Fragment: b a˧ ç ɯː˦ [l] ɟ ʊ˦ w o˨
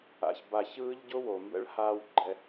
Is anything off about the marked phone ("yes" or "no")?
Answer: yes